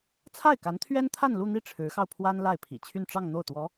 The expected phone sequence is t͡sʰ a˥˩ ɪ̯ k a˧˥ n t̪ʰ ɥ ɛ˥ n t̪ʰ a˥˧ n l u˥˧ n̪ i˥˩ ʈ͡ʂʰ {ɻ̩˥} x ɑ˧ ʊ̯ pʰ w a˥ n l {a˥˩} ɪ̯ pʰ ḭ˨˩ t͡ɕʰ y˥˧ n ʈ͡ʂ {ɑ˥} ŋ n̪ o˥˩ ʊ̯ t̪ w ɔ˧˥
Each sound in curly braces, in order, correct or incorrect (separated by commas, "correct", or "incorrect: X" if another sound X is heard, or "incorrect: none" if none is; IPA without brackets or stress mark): incorrect: ɻ̩˧˥, correct, incorrect: ɑ˥˧